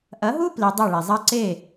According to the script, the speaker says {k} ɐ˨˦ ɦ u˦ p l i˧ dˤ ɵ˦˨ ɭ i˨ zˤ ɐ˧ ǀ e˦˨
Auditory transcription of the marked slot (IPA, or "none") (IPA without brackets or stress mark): ʔ